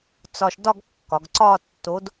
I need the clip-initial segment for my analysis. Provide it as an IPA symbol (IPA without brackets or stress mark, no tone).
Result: t͡s